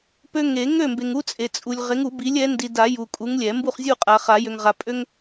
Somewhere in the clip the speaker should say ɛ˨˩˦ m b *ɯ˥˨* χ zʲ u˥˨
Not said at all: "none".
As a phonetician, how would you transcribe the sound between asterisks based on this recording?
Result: u˥˨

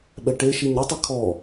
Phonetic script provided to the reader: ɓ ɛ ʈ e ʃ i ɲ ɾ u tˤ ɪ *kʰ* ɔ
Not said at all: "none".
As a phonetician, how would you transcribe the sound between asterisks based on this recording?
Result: kʰ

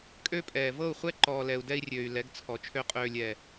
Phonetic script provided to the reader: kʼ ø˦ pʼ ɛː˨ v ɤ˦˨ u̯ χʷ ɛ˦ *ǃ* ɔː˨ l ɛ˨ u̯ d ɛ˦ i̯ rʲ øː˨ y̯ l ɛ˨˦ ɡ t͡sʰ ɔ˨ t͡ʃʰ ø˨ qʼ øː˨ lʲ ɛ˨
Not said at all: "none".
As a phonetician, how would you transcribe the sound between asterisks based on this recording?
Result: ǃ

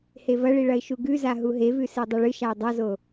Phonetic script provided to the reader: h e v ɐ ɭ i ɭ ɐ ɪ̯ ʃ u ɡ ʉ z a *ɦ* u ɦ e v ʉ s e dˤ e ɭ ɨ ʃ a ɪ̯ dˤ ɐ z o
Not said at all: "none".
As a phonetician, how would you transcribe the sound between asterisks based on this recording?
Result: ɦ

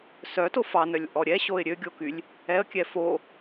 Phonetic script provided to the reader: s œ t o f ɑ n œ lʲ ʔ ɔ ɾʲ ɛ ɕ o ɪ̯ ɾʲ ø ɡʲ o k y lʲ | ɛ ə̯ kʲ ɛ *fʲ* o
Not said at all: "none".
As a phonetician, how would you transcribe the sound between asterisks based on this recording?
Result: f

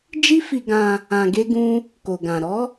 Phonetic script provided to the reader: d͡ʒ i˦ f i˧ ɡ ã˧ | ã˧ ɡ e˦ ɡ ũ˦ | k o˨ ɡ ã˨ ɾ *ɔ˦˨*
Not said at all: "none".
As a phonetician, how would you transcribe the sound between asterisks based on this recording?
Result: ɔ˨˦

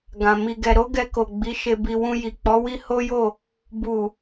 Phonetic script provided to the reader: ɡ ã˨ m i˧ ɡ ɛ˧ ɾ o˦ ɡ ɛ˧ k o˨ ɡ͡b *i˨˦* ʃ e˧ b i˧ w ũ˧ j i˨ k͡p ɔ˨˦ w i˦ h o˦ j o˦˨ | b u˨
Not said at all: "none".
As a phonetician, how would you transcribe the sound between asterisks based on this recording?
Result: i˨˦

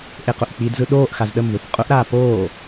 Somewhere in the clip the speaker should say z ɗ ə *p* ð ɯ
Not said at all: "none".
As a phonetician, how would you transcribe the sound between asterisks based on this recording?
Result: m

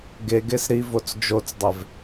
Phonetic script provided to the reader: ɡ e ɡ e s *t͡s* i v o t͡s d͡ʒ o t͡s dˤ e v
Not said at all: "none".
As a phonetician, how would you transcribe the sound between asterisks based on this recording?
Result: ɾ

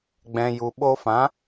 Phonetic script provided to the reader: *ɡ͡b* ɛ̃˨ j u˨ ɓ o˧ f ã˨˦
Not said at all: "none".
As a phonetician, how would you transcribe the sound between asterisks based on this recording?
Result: ɡ͡b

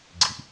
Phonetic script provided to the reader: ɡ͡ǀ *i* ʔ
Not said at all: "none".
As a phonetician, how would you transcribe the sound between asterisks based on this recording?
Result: i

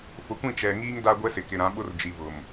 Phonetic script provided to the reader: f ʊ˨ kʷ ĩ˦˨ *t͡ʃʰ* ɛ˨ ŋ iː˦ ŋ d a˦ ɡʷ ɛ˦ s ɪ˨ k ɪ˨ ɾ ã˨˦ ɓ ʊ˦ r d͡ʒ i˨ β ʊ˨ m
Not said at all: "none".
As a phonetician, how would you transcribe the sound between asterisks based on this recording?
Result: t͡ʃ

